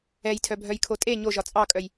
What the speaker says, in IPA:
ɛ j tʰ œ bʱ œ j kʰ o tʼ e ɲ o ʒ ɒ t͡sʼ ɑ kʼ œ j

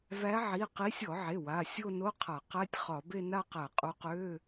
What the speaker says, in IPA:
v æ˨˦ ʕ i˩˧˩ q i˨˦ sʲ ɔ˧˩˧ ʕ e˩˧˩ w a˩˧˩ sʲ o˥˧ n o˧˥˧ qʰ a˧˩˧ q æ˧˥˧ tʲ χ ɒ˧˩˧ b e˥˧ n a˥˧ q æ˧˩˧ qʼ u˨˦ q ø˧˥˧

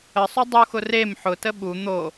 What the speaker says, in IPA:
ə sˤ u dˤ u x ʊ r e m ħ ʊ t ə ɓ u n̪ o

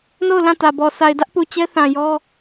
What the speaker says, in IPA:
n o˦˨ ʊ̯ l ã˦˨ t ä˨ b ɔ˨ sʰ a˨ ɪ̯ d ä˦ ʔ p u˨ t͡ɕ ɛ˦ θ ã˨ j ɔ˦

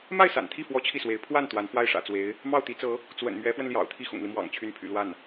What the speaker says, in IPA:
m a˥˩ ɪ̯ s a̰˨˩ n t̪ʰ i˥˩ f w ɔ˥ t͡ɕʰ i˥˩ s w e˧˥ ɪ̯ pʰ w a˥˩ n t̪ w a˧˥ n f w a˥˩ ɪ̯ ʂ ä̰˨˩ t͡s w e˧˥ ɪ̯ | m ɑ˥˩ ʊ̯ t̪ i˧˥ t͡s ɤ˧˥ | t͡s w ə̰˨˩ n m ɥ ɛ˧˥ f w ə˧ n l j ɑ̰˨˩ ʊ̯ t̪ʰ i˥˩ x ʊ̰˨˩ ŋ l i˦ m w ɑ̰˨˩ ŋ t͡ɕʰ y˧˥ n pʰ y̰˨˩ l w a˥˩ n

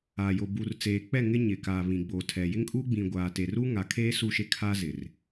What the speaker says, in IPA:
a˨ j o˨ b u˨ r t͡s eː˨ k͡p ɛ˦˨ ŋ ɪ˦ ɲ ɪ˨ k a˨ β ĩ˨ ɡ͡b o˨ tʰ ɛ˨ j ɪ˦ ŋ kʼ u˦ ɡ͡b ĩ˨ ɡʷ aː˨ t e˨ r u˦ ŋ a˨ kʰ eː˦ s u˦˨ ʃ e˦ kʰ aː˦ z ɪ˨ r

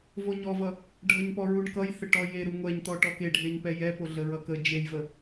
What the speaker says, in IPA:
v o ɲ ɔ v ʌ | ɖʱ ʌ ɲ p ɔ ɹ u ɳ k ʌ j θ ə ʈ ɔ j e ɾ u ŋʷ ɛ ɲ t̪ ɔ ʈ ɔ k e ɖʱ e ɲ p ɛ j ɛ p o ɮ ə ɹ ʌ k ə d͡ʒ e j v ə

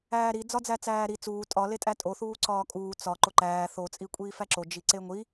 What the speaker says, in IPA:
æː ɾ i d͡z ɒ d͡z æ t͡s æː ɾ i t͡s uː tʼ ɒ l e tʼ æ tʼ o θ uː ǀ ɒː kʼ uː t͡s ɒ ǃ o ǃ æː θ o t͡sʼ i kʷʼ iː f æ ǁ o d͡ʒ i ǀ e ŋʷ i

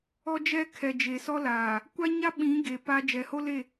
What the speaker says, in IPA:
ɔ˦ d͡ʒ ɛ˦ kʰ ɛ˨ d͡ʒ e˨ s ɔ˦ l aː˨ | kʷ a˦ ɲ a˦ ɓ ĩ˨˦ ɡ e˨ p a˦ d͡ʒ ɛ˨ h o˦ l e˦˨

